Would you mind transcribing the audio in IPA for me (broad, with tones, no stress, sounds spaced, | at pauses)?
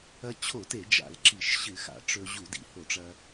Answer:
ɐ˧ t͡ɕʰ o˧˩˧ t e˧˩˧ d͡ʒ a̰˧˩˧ l ǁ i˧˩˧ ʃ ɕ ɨ˧˩˧ x a̰˧˩˧ ʈ͡ʂ ɵ˧ ʑ u˧˩˧ d ḭ˩ h o˧˩˧ ʈ͡ʂ ɐ˧